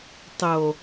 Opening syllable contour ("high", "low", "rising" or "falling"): low